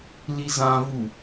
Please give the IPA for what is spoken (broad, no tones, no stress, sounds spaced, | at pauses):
l i z ã v u